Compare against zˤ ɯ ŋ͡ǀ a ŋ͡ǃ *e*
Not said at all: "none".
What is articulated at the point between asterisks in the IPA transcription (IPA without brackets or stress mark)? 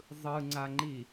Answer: i